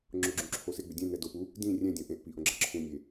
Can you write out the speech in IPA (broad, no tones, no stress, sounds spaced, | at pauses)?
ŋ͡ǁ ʊ ɡ͡ǁ ũ ǁʰ o s ɪ ɡ͡b ʏ dʲ ɛ̃ n ɛ d o p u | d ĩ rʲ ɛ̃ dʲ õ ʔ ẽ ʔ p i ʔ õ ɡ͡ǁ ɐ ǁʰ ũ nʲ e